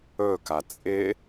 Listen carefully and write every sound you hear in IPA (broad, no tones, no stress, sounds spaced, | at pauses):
ɵ k a t͡sʼ ɪ